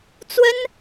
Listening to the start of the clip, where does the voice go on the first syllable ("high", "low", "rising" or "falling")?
high